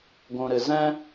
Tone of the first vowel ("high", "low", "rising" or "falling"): low